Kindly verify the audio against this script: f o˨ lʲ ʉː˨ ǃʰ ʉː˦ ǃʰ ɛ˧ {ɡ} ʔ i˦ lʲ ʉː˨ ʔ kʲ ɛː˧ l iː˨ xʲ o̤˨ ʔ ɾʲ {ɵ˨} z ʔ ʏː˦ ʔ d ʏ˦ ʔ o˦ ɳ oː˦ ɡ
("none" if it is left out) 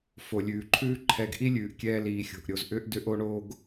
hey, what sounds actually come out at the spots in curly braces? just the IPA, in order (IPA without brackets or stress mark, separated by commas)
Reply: ɡ, o˨